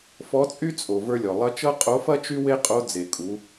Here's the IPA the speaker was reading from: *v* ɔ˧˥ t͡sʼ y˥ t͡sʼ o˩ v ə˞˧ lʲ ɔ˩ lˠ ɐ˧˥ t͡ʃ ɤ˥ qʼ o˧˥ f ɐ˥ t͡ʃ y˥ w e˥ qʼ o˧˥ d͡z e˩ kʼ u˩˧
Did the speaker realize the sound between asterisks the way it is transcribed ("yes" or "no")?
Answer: no